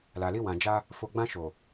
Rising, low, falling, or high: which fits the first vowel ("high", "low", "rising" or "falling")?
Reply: low